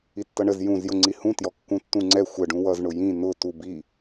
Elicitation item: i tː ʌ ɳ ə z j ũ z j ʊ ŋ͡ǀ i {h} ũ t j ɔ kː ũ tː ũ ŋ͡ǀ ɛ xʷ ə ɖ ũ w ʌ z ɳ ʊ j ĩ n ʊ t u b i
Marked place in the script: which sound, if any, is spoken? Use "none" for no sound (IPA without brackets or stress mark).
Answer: h